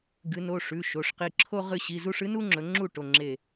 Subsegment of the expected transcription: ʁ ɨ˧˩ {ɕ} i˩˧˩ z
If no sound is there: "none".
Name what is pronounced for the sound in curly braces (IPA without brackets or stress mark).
ɕ